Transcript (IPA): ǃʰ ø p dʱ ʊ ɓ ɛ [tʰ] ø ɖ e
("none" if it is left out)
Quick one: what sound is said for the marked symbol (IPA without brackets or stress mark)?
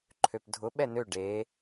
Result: n